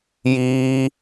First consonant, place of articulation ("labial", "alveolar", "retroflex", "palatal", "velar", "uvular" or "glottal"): palatal